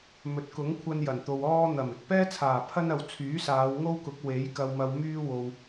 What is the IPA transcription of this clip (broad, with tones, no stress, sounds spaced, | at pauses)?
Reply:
m ɵ˨˥ t̚ k ʊ˨˥ ŋ kʷʰ ɐ˧ n j ɐ˨˩ n t̪ o˨ w ɔː˥ n̪ ɐ˨˩ m ɪ˨ k̚ p ɛː˥ t͡sʰ aː˨˩ pʰ ɐ˥ n ɐ˨ w t͡sʰ yː˨˥ s aː˨˧ w ŋ o˥ w k ʊ˨˥ k̚ w e˨˥ j k ɐ˧ w m ɐ˧ w m yː˥ w o˨ w